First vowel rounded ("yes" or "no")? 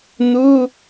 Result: yes